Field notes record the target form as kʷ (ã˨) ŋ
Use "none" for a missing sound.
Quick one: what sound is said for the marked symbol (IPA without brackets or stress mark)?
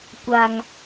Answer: a˨